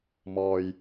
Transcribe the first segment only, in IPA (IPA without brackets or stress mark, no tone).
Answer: m